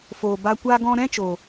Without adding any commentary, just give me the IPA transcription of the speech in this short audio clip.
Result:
foː˨ ba˧ kʷaː˧ɡɔ̃˧ɾɛ̃˦t͡ʃo˨

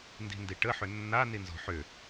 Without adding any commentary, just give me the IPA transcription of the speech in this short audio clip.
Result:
ndi̤ndiʈə ħʏnːa ninzɔ̤ħʏ

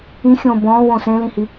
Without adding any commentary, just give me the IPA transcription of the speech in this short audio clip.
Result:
ĩxʲõː bɔ̃ːwõ sẽlĩhi

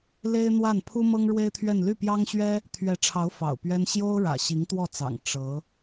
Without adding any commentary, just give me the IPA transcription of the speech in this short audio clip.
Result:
le˥ɪ̯n̪wa˥˩n pʰu˥mɤ˥ŋɻwe˥ɪ̯t̪ʰɥɛ˥˧n ly˥˩pjɑ˥ŋɕɥɛ˥ | t̪ʰɥɛ˧˥ʈ͡ʂʰɑ˧˥ʊ̯ fɑ̰˨˩ʊ̯pɥɛ˥n ɕjo˥ʊ̯ɻä̰˨˩ ɕi˧˥ŋt̪wɔ˥˩t͡sɑ̰˨˩ŋ ʈ͡ʂɤ˧˥

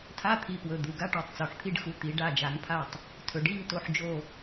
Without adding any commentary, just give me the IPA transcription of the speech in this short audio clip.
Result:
tʰa˧˥˧t̪ʰi˩˧˩pwɵ˩˧˩ d̪u˩˧˩ɡa˥˧ ʈɔ˧˩tˤt͡so˩˧˩ħt̪ʰi˥˧ɖxu˩˧˩ t̪i˨˩˦ ɖa˩˧˩d͡ʒa˨˩˦ŋpʰa˧˩tˤ | tʰɵ˨˩˦ɖi˧˥˧ŋ to˧˩ħd͡ʒo˧˩

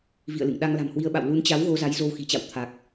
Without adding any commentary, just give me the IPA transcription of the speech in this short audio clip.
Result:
vḭ˧˨ə̯lɨ̰˧˨ŋ ɗa˧ŋla̤˨˩mhwi˧ə̯ɓa̰˧˨w lu˨˦nt͡ɕa˨˦w ɣo˧za˨˦j zo˧wxi̤˨˩t͡ɕa̰˧˨w t̪ʰa˨˩k̚

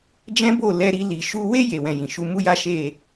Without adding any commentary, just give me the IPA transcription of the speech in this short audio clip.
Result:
d͡ʒɛ̃˦bo˦˨ lɛ˧ɾi˧ li˨ʃu˧we˦ je˧wɛ̃˧jĩ˨ ʃu˨˦mu˦ja˦ ʃe˦˨

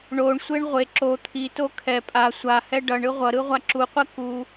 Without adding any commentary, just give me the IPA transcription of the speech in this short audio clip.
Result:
ɳoɳsʷeɳ ʁʷe ǁo t̪ʰito kʰɛ pʼa sʷahɛ ɖʌɳɯ ʁʷʌɾɯ ʁʷaǁuqʷɛ ku

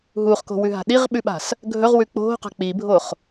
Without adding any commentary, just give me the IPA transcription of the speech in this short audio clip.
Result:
ɦuχko̤wʉɦa̤ ɗiʁɓʉɓa̤s | ɡʱɵʁwʉ k͡po̤qa̤ k͡pibʱoχ

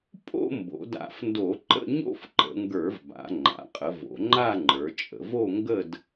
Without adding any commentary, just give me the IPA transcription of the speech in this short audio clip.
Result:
pʼo̰˥˧ mbo̰˩˧da̰˧˩˧fndo˧˩˧ǃə̰˥˧ ɲo̰˥˧fǃə̰˩˧ŋɡə˞˧˩˧vba̰˩˧ ŋ͡ǃa̰˩˧qʼə˩˧ vo̰˩˧ŋ͡ǃa˥˧ŋ͡ǃə˞˩˧t͡ʃʼə̰˩˧v o˥˧ŋɡə˥˧d

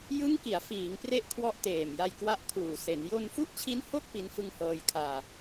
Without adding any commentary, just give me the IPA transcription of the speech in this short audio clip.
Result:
jɯ˦˥ŋki˩˦a̯ fiː˩˦ŋpre˥˩ʔ kʰwɔ˦˥ʔteː˨˩mja˧j kwa˦˥ʔkʰuː˨˩ se˩˦n jo˧nfu˥˩ʔt͡ɕʰi˦˥nho˥˩k̚ pi˦˥nfɯ˥˩ŋhɤː˧j kʰaː˧

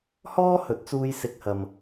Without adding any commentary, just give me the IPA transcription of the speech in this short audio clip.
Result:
hɔː˥hɵ˨˥t̚t͡suː˧j sɪ˨k̚hɐ˨m

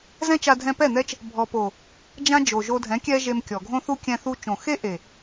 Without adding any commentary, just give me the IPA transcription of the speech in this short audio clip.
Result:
zɛ̃˦t͡ʃa˧dʱɛ̃˧ pɛ˦˨n̪ɛ˦t͡ʃ | bʱɔ˨po˨ | d͡ʒã˦ d͡ʒo˨ʒo˧dʱɛ̃˨˦ kʲɛ˦ʒe˧mkʲɔ˨ ɡʱõ˦θu˦kʲɛ̃˧ θu˦ t͡ʃõ˨xe˦ʔe˨

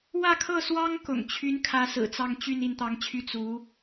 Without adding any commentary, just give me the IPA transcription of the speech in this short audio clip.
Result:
wä˥˧kʰɤ˥˩swɑ˥ŋ kʊ̰˨˩ŋ t͡ɕʰy˧˥nkʰä˧˥ sɹ̩˨˩t͡sɑ˥˧ŋ t͡ɕy˥˧n i˥˩nt̪ɑ˧˥ŋt͡ɕʰy˥ t͡su˧˥

